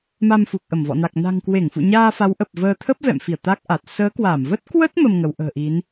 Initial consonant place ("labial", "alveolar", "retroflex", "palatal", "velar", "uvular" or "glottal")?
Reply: labial